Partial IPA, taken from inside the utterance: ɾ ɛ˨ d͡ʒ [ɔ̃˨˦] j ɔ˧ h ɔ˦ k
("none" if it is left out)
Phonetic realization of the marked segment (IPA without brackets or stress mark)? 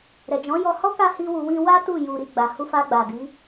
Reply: ɔ̃˨˦